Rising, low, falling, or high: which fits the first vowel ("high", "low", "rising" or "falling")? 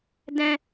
high